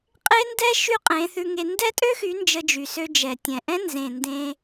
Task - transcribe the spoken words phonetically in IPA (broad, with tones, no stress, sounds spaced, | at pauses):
qʼ e˦ n d ɛ˦ ʃ y˦ qʼ ẽ˨˦ θ ʉ˧ ŋ e˧ n d ɛ˦ tʼ ø˦ x y˨˦ n d͡ʒ ə˧ d͡ʒ y˨ s ø˧ d͡ʒ ɛ˨ tʲ ɛ̃˨ ʔ ɛ̃˦ n z ẽ˨ n d ẽ˧